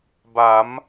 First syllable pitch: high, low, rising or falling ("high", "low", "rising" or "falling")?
rising